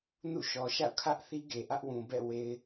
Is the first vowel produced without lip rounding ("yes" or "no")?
no